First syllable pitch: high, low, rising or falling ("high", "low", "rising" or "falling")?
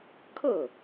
falling